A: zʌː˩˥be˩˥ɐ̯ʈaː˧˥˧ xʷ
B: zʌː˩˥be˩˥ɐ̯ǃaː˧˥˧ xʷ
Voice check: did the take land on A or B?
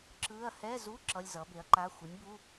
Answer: B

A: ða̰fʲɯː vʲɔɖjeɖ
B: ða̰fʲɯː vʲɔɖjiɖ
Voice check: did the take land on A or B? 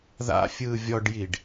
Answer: B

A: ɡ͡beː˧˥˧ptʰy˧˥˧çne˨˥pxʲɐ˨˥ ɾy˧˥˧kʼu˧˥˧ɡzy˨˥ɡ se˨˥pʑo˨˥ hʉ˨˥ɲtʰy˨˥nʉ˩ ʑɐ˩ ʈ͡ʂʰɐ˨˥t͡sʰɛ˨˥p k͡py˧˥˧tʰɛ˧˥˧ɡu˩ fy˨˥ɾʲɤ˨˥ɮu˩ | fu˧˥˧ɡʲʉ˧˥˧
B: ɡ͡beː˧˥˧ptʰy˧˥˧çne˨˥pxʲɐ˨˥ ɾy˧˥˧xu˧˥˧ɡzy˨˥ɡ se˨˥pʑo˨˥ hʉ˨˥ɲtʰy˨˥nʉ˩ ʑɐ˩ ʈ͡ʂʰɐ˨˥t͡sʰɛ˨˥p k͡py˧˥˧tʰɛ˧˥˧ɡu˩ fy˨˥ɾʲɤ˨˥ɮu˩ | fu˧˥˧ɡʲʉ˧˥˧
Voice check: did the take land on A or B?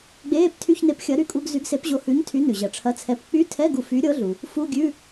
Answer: A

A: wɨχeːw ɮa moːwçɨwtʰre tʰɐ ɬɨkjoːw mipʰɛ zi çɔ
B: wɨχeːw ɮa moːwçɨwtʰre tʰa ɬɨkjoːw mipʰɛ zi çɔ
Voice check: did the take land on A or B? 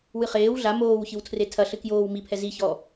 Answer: A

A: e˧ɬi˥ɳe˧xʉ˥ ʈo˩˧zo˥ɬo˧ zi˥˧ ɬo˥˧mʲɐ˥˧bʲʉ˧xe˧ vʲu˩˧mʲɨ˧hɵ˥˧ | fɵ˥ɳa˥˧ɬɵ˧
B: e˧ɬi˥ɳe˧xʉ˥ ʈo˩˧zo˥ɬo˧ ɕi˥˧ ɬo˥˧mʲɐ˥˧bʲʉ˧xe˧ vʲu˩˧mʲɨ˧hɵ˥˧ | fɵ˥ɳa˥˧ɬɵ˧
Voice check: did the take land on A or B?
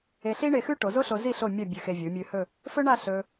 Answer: A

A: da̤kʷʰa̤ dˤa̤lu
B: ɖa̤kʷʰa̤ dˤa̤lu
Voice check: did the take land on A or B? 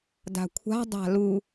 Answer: A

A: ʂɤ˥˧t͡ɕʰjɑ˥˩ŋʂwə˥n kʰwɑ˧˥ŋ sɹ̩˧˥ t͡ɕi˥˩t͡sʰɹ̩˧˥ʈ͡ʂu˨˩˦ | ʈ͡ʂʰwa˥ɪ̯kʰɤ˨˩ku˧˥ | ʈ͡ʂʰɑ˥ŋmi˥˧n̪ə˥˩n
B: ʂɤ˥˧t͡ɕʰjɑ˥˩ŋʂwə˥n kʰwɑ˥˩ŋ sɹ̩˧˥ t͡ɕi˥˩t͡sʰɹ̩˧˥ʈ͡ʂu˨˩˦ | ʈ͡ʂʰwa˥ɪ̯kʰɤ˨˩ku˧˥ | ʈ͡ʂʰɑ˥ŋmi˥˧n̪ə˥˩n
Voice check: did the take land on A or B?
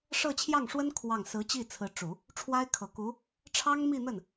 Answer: B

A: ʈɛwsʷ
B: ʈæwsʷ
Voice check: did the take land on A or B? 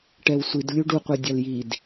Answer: A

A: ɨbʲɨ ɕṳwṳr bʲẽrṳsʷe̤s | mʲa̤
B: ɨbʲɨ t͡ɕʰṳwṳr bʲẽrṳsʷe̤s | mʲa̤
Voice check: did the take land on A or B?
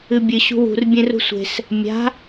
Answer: A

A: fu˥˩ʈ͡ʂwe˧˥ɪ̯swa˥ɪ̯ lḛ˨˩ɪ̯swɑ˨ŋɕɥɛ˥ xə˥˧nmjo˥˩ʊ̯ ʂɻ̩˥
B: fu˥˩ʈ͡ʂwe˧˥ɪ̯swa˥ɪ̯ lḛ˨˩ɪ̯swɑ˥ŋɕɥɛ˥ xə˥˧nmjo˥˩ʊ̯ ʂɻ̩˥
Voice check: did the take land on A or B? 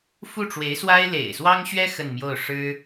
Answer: B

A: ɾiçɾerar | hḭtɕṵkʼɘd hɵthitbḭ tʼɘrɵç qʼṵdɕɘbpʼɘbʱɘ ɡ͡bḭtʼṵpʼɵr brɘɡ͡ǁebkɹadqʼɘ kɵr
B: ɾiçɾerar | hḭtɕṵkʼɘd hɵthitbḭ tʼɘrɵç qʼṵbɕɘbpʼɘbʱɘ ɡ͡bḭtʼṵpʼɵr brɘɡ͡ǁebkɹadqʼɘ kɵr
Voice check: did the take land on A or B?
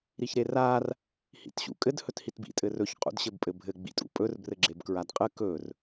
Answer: A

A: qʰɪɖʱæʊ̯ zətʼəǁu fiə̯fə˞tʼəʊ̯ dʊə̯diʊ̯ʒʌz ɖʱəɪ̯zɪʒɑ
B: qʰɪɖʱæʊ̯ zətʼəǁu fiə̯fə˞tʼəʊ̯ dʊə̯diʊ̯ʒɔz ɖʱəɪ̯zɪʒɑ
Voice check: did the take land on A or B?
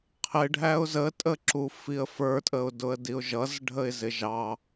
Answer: A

